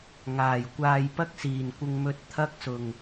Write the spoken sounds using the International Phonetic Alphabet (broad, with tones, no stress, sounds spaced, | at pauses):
ŋ aː˨˩ j kʷ aː˨ j p ɐ˧ k̚ s iː˨˩ n kʷ ɪ˨ ŋ m ɵ˨˥ t̚ t̪ʰ ɐ˧ k̚ s ʊ˨ ŋ